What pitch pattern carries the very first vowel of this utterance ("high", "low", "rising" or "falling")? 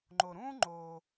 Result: low